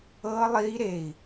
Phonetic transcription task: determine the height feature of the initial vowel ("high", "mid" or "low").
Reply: mid